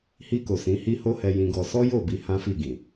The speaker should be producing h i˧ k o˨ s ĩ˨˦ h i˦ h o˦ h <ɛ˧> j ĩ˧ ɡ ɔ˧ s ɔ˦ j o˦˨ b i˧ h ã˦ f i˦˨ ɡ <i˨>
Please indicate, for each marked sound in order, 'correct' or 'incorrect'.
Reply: correct, incorrect: ĩ˨

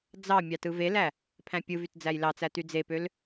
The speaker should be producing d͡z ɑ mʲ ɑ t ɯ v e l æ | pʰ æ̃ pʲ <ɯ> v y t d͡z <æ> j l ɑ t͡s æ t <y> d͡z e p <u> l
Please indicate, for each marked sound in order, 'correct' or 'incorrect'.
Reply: correct, correct, correct, incorrect: ø

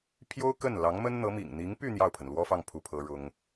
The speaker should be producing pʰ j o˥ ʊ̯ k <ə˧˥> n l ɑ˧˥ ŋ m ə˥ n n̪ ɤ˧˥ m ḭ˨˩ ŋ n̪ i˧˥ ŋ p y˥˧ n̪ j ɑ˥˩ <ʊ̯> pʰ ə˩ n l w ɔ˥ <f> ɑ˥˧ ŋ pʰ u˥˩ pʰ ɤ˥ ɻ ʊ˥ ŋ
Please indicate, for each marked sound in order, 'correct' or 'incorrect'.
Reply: incorrect: ə˥˩, correct, correct

